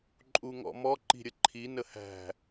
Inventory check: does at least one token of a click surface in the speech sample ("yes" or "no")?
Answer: yes